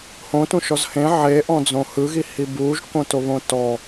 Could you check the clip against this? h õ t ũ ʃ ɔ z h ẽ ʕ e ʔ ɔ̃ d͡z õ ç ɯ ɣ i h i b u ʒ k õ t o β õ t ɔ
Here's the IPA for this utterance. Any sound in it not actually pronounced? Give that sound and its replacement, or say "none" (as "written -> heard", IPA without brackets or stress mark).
ç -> h